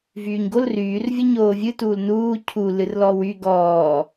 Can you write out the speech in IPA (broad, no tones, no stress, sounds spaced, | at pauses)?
v yː ɲ ɡ o l r yː r vʲ o ɲ oː vʲ ɨ t uː l n uː cʰ u l ɨ r l ɔ w y ɡ ɔː